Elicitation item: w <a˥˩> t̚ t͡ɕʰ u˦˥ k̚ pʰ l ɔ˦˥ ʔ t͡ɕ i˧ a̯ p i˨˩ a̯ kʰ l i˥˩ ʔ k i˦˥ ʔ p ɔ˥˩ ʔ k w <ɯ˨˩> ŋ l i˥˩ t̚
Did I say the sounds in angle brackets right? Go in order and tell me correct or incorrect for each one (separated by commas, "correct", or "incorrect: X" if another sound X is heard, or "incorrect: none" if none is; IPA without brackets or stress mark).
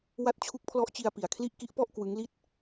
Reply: incorrect: a˦˥, incorrect: ɯ˦˥